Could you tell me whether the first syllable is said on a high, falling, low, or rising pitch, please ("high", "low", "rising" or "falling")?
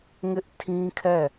high